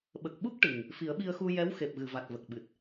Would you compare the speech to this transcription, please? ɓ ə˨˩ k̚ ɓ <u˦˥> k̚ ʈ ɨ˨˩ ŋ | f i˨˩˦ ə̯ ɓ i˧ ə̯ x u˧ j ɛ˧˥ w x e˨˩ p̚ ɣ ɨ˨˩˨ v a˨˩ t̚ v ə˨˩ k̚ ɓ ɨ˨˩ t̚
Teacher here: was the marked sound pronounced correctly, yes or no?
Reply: yes